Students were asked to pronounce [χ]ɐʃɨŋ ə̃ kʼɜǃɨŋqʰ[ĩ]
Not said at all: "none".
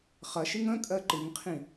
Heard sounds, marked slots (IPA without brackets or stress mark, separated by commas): χ, ĩ